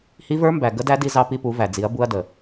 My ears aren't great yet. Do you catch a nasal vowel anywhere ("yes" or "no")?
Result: no